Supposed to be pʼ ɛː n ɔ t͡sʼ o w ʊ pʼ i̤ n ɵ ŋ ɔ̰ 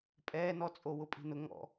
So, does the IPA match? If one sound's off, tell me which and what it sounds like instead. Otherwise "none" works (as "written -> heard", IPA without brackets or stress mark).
ɵ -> ʊ